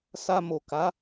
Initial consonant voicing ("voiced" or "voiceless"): voiceless